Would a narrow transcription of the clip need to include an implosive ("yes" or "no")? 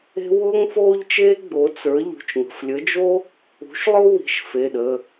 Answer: yes